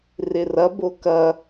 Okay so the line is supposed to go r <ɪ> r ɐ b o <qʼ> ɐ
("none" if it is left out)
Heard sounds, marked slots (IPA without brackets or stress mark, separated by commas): ɪ, k